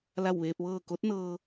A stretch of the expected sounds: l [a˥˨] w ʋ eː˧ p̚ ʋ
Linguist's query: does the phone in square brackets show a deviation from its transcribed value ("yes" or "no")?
no